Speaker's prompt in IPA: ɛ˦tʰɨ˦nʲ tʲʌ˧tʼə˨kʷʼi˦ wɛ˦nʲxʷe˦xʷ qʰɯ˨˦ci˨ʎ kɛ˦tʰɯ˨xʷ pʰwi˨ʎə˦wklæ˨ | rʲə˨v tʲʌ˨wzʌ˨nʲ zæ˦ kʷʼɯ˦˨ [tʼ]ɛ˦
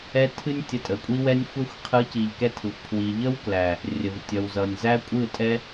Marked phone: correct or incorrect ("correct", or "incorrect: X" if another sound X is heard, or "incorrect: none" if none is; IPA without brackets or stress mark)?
correct